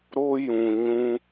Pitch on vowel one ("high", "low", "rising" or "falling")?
high